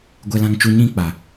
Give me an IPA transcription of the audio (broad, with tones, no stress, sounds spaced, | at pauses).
ɡʷ ɛ˦ l ã˦ ŋ t͡ʃ u˦ ɲ ĩ˦ k͡p a˨